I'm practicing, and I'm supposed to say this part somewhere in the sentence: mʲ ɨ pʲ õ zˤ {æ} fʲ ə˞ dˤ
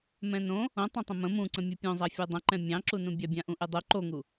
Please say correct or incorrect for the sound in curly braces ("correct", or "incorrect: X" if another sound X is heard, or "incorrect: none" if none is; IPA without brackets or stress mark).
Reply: incorrect: a